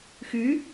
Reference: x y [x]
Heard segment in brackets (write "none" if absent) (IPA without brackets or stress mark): none